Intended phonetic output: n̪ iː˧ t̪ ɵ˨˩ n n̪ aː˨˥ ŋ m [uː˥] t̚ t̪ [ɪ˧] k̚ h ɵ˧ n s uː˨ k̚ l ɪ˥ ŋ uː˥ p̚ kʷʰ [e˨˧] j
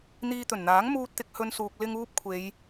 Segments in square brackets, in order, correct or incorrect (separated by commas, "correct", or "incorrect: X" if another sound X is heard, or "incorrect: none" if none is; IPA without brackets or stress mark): correct, correct, correct